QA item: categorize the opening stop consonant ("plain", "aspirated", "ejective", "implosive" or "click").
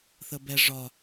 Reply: plain